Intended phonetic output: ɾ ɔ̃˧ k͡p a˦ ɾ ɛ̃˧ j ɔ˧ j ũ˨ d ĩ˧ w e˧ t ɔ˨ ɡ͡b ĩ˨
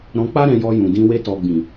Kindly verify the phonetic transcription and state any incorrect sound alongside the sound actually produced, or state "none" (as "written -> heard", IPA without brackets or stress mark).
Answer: none